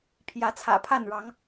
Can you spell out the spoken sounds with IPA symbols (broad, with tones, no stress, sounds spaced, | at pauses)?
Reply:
pʰ j ä˨˦ t͡sʰ ä̰˨˩ pʰ a˥˨ n ɻ ɑ˨˦ ŋ